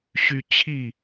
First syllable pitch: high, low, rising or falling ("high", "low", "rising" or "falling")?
high